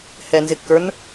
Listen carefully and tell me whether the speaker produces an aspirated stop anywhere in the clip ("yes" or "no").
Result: no